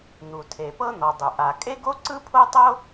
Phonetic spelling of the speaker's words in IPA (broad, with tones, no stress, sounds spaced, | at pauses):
n̪ u˩ tʰ e˩ p ɤ˥ n̪ ɔ˩ dˤ u˩ ʔ a˩ kʼ e˥ ɡ o˥ ǀ ɯ˥ pʰ o˥ tˤ o˥